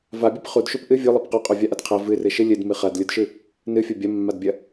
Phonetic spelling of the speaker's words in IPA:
v a bʲ e p χ u d ʃ u p ʔ ɨ vʲ o lˠ ɐ p q o qʼ o vʲ a ʔ ɐ d qʰ ɐ v ɨ r ɨ ʃ ɨ lʲ ɨ d m ɨ χ ɐ d lʲ u d ʃ ɨ | n ɨ fʲ ɐ bʲ ɐ mː a d bʲ ɐ

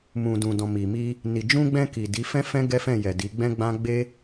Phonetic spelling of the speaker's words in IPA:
m ũ˨ d ũ˨ d ɔ̃˨ m i˨ m i˧ | n i˨ d͡ʒ ũ˧ ɡ͡b ɛ̃˧ k i˨ d i˨˦ f ɛ̃˦ f ɛ̃˦ ɡ ɛ˦ f ɛ̃˦˨ j ɛ˨ d i˨˦ ɡ͡b ɛ̃˦ ɡ͡b ã˦ ɡ͡b e˦

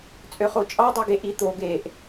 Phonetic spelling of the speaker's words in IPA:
t͡sʼ ø χ o t͡ʃʼ ɑ dˤ i ɡ e ʔ i t̪ o ɡ e ʔ

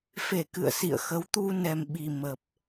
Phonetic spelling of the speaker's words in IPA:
f e˧˩ k ɨ̰˧˨ ə̯ s ḭ˧˨ ə̯ x ə˨˦ w t̪ u˧ n ɛ˨˩ m ɓ i˨˩ m ə˨˩ p̚

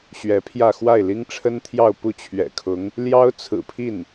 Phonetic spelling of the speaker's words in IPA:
ɕ ɥ ɛ˧˥ pʰ j ä˥˧ x w a˥˩ ɪ̯ l i˥ ŋ ʈ͡ʂʰ ə˥ n t̪ʰ j ɑ˥˧ ʊ̯ p u˥˩ t͡ɕʰ ɥ ɛ̰˨˩ kʰ ʊ˧˥ ŋ | l j ɑ˥ ʊ̯ t͡sʰ ɹ̩˨˩ pʰ i˥˩ n

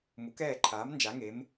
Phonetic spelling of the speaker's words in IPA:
m u˨˥ k ɛː˦˨ ǃʰ aː˨˥ m n d͡ʒ a˨˥ ŋ e˨˥ m

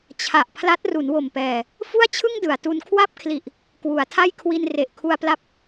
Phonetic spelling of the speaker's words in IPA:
t͡ɕʰ a˨˩ ʔ pʰ l a˦˥ t̚ r u˩˦ n w o˨˩ m p ɛː˨˩ | f u˥˩ a̯ t͡ɕʰ ɯ˥˩ ŋ d ɯ˩˦ a̯ t u˧ n kʰ w a˥˩ p̚ kʰ l i˨˩ ʔ | k w u˩˦ a̯ tʰ a˥˩ j kʰ w i˧ n r e˨˩ ʔ kʰ u˧ a̯ p l a˦˥ p̚

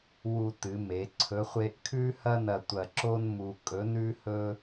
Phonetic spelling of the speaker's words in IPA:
w u˧ t ɨ˩˧ m e˩˧ ǀʰ ɵ˧˥ χʷ e˥ ʔ kʰ ʉ˥ h ɐ˥ n ɐ˧ tʷ ɐ˧ ǁ o˥ n m u˧ kʼ ɵ˧˥ n ʉ˥ h ɵ˥

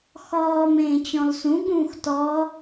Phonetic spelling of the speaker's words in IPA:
x ɔː m ẽː t͡ɕ ɔ̃ l s ũ ɠ ũː x t ɔ

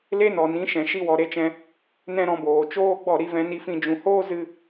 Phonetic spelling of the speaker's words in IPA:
l e˦ n ɔ˨ n ĩ˨˦ ʃ ɛ̃˨ ʃ i˦ w ɔ˨ ɾ e˦ t͡ʃ ɛ̃˧ | n ɛ̃˦ ɾ ɔ̃˧ b oː˨ t͡ʃ oː˦ ɡ͡b ɔ˦˨ ɾ i˧ v ɛ̃˧ n i˧ f ĩ˧ d͡ʒ ũ˨ h oː˦ z ɨ˧

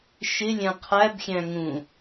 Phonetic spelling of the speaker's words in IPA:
ʃ ɪ lʲ æ̃ qʰ æ b xʲ æ̃ ŋ ũ

